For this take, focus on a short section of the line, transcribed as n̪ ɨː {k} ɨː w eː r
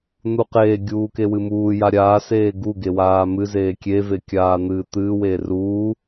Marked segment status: incorrect: t̪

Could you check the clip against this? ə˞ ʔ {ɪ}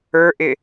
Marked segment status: correct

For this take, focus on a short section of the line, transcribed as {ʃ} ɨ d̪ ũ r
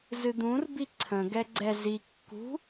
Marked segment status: incorrect: z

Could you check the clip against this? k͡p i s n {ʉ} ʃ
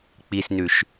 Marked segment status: correct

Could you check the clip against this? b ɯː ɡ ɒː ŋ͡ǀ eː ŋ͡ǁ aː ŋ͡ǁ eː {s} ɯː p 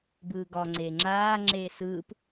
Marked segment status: correct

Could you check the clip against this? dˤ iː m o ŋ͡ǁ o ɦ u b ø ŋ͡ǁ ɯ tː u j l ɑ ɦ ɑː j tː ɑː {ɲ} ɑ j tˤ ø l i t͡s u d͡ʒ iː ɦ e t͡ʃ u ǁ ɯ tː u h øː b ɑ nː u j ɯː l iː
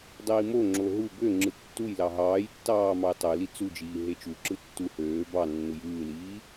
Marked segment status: incorrect: m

